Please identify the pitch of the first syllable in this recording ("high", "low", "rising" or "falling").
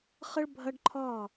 high